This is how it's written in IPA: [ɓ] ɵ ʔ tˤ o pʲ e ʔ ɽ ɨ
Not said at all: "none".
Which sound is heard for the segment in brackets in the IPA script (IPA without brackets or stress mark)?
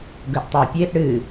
ɡ